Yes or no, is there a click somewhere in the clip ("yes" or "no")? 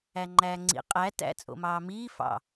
yes